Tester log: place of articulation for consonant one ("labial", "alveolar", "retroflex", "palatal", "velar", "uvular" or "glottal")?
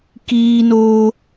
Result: velar